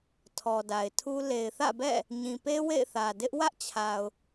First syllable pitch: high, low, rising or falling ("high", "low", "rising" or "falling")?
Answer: low